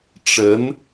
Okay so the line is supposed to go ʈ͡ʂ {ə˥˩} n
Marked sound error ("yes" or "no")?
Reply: yes